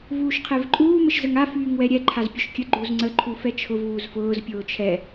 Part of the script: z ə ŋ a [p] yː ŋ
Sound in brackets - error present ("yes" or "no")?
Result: yes